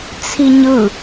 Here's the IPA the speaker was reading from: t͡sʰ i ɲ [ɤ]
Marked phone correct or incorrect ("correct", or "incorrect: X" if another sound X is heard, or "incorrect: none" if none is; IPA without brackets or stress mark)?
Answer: incorrect: ɯ